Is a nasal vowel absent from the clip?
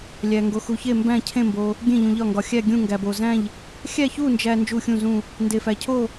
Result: no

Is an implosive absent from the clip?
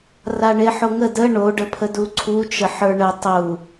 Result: yes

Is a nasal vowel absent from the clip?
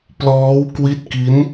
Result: yes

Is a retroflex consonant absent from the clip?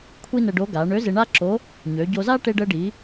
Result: no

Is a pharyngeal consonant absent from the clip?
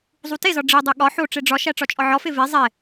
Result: no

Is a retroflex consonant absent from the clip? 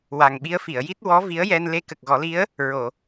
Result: yes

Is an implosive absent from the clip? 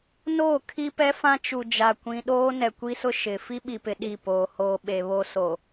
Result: no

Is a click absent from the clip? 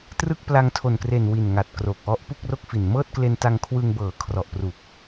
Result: yes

